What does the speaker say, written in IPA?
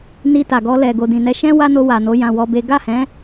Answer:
n i˧ t a˨ ɡ ɔ˧ l ɛ˨ ɡ o˨ d ĩ˨ n ɛ˨˦ ʃ ɛ̃˦ w a˦ n o˧ w a˨ n o˨˦ j ã˧ w ɔ˦ b e˦ ɡ a˦˨ h ɛ̃˨˦

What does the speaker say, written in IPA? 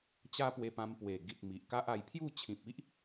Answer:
t͡ɕ a˦ p w e˧ p ã˧ m p w e˨˩ ɡ i˨ t̚ m i˨ ʔ k a˦ ʔ a˧ j pʰ j u˥˧ t͡ɕʰ ĩ˨ p̚ i˦ ʔ

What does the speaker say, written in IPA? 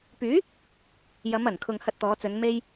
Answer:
p yː˨˥ | j ɐ˨˧ m ɐ˨˩ n kʰ ʊ˨ ŋ h ɐ˧ t̚ t̪ ɔː˨˧ t͡s ɵ˨˧ n m e˧ j

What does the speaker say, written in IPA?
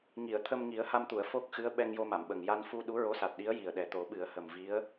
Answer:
ŋ i˨˩˨ ə̯ t̪ʰ ə˧ m ŋ i˨˩˦ ə̯ h a˧ m t̪ u˨˩˨ ə̯ f o˦˥ k̚ x ɨ˧˥ ə̯ ɓ ɛ˧ ŋ j o˧ m a˨˩˨ m ɓ ə˨˩ ŋ j a˧ n f u˧ ɗ u˧˥ ɹ o˧˥ s a˨˩ t̚ ɗ i˧˥ ə̯ j i˨˩ ə̯ ɗ ɛ˨˩ t̪ o˨˩˦ ɓ ɨ˨˩˦ ə̯ h ə˨˩ m v i˧˥ ə̯

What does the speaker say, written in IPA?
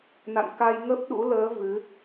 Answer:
n a̰˧˨ n k a˧ j ŋ ə˦˥ p̚ ɗ ṵ˧˥ l əː˨˦ v ɨ˨˦

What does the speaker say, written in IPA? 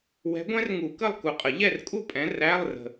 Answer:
w ɛ̤˨˦ ɡʷ ɛ̃˦˥ r ŋ u˨˩˦ k ə˥˨ lˠ k u˨˦ qʼ ə˨˩˦ ʎ ɛ˥˨ r kʼ u˥˨ pʼ ɛ̃˨˦ r æ˧˥˧ lˠ r ə̤˨

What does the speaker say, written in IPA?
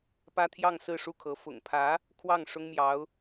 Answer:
p ä˥ t̪ʰ j ɑ˥˧ ŋ s ɹ̩˥˧ ʂ u˥˩ kʰ ɤ˧˥ f ʊ̰˨˩ ŋ pʰ ä˧˥ | kʰ w ɑ˥˩ ŋ ʂ ʊ˥ ŋ m j ɑ˧˥ ʊ̯

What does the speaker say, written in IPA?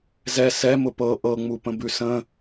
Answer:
z ɛ s ɛ m ʊ p ɤ ʔ ɤ ŋ͡m u p ə̃ b ʉ s ə̃

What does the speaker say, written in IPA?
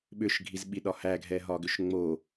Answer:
ɓ ʏ ʃ ɡʱ i z ɓ i ɗ ɒ h æ ɡʱ ɛ ɦ ɒ ɡ ʏ ʃ ŋ͡m o

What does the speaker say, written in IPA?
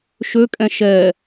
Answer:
ʃ ø kʼ ɛ̃ ʃ ɛ

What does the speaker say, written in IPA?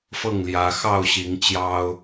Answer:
f ɤ˥˨ ŋ l j ä˨˦ x ɑ˥˨ ʊ̯ ɕ i˨˦ ŋ t͡ɕ j ɑ˦ ʊ̯

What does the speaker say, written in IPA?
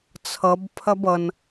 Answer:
t͡sʰ ʌ b pʰ ɐ b ʌ n

